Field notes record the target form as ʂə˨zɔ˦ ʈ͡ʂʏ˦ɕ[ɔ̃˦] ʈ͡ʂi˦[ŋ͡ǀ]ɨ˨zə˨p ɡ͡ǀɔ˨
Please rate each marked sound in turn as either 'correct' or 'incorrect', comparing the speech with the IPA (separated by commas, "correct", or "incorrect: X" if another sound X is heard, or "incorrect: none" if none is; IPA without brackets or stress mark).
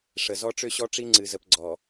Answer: incorrect: ɔ˦, correct